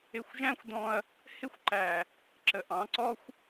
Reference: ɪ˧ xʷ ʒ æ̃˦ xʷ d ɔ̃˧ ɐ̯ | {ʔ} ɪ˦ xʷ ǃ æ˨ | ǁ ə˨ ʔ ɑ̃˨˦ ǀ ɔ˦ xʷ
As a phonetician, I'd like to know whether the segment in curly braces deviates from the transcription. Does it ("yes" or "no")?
yes